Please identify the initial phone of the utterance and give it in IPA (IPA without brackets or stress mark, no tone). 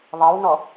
ðˤ